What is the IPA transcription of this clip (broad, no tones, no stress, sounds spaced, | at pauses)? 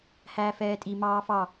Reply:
h æː f ɛː tʼ i m ɑː f ɑ